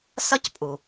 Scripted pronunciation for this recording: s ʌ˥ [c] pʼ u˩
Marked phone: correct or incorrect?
correct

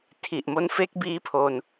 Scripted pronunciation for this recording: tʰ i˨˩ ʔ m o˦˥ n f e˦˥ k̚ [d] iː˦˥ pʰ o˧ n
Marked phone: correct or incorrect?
incorrect: b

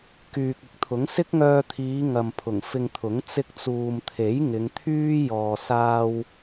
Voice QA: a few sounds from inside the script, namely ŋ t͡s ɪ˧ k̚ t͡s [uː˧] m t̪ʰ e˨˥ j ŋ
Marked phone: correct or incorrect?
incorrect: uː˨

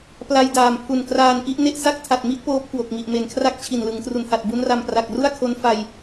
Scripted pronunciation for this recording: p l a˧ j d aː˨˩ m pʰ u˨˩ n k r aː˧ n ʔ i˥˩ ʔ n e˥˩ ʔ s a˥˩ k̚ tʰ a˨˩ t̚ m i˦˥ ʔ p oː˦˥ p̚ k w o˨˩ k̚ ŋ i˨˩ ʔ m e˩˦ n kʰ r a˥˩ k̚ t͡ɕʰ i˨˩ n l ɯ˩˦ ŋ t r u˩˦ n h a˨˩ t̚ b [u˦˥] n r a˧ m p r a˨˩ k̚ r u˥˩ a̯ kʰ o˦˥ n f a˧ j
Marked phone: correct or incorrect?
correct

